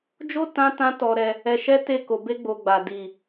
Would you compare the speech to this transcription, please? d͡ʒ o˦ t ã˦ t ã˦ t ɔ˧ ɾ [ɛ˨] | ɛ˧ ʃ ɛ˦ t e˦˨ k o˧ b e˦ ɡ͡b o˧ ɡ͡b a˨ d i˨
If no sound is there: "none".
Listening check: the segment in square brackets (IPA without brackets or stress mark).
ɛ˧